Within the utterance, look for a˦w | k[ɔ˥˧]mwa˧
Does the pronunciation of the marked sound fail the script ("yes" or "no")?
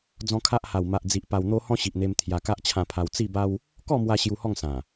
no